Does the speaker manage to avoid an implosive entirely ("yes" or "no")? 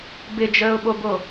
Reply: no